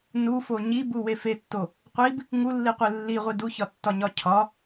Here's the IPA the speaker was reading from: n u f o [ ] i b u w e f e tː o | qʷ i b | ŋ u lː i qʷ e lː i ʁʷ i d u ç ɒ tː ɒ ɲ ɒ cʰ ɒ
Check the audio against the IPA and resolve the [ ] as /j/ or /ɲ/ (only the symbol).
ɲ